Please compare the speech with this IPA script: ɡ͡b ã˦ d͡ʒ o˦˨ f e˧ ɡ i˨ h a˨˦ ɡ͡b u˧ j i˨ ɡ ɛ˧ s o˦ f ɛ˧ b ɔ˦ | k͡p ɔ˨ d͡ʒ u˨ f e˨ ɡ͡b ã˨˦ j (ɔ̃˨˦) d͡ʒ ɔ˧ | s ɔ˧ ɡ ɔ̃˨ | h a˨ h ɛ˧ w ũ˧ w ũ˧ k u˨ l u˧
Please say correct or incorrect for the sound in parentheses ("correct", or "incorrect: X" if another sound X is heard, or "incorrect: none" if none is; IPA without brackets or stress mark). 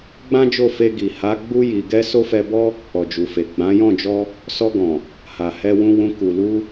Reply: incorrect: ɔ̃˦˨